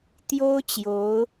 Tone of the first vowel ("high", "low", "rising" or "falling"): high